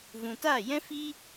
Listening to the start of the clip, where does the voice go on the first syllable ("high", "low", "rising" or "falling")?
low